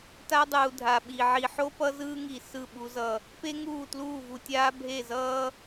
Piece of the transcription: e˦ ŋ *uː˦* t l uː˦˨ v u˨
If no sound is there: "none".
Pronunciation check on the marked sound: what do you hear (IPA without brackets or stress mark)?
uː˦˨